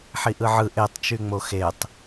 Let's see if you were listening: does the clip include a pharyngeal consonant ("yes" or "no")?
yes